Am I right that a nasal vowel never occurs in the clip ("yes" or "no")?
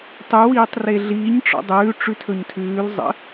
yes